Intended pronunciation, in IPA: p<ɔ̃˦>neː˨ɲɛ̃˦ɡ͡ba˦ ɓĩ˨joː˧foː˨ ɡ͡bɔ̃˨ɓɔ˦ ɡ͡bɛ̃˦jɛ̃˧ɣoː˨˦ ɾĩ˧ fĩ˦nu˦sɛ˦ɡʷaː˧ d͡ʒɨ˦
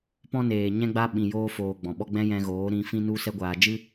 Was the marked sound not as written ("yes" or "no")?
no